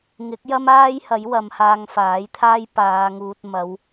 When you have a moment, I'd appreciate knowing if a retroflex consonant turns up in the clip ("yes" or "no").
no